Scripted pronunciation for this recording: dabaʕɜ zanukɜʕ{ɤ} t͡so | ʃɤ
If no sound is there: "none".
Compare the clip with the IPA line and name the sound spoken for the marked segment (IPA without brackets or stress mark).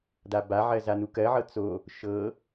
ɤ